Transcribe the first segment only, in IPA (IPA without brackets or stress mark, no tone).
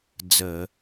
d͡z